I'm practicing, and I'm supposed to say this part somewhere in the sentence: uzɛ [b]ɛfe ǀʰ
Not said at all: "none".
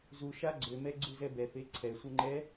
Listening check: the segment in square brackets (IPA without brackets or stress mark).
b